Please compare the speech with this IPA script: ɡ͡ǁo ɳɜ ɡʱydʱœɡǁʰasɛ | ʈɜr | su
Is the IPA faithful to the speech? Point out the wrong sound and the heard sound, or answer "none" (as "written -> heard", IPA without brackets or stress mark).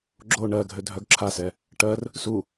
y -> ø